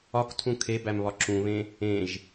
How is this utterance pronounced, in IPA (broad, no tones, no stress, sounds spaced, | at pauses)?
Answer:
ɒ k tʰ ũ kʰ e b æ m β ɒ ǁ ũ β ẽ | ẽ ʒ